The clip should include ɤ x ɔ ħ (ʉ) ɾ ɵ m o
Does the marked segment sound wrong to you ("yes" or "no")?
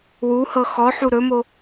yes